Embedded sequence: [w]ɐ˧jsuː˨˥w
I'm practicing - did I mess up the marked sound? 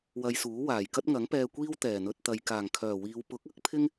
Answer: no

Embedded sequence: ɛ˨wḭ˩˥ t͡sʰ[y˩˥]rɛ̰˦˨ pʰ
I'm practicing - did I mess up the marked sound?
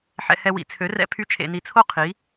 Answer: yes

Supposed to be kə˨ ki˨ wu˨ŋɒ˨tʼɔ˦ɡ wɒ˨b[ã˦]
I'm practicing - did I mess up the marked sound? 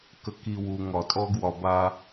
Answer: yes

